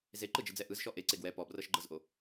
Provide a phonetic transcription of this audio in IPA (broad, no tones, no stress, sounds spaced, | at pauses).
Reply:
z e ǃ ɯ d͡ʒ ɯ d͡z ɛ ʔ ɯ z ʃ ɔ ʔ e ǀ e ɡ w ɛ p ɔ b r ɤ ʃ ɡ͡ǃ ɤ z ʔ o